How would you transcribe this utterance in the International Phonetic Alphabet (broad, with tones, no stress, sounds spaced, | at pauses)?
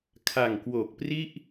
kʰ a˨˩ ŋ k w oː˨˩ k̚ p r i˥˩ ʔ